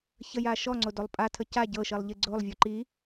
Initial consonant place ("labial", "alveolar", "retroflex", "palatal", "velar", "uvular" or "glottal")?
palatal